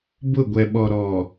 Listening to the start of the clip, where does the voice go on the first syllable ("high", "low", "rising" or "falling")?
falling